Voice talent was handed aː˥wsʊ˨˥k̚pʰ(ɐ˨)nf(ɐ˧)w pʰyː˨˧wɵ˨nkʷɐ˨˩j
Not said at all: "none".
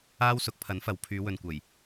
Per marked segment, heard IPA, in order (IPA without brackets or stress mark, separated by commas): ɐ˨˥, ɐ˨˧